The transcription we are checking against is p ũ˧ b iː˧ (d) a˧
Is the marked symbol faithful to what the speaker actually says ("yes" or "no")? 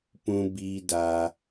yes